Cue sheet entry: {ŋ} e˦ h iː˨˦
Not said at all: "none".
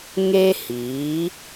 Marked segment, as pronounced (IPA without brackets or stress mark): ŋ